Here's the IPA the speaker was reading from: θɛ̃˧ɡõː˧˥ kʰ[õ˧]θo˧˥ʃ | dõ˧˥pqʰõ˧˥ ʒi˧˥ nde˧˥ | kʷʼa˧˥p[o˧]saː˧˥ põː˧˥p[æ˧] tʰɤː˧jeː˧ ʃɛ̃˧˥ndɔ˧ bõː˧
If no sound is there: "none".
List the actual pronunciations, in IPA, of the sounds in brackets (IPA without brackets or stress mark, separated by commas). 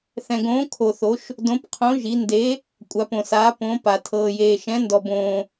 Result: o˧, õ˧, a˧